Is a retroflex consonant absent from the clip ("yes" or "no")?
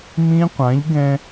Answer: yes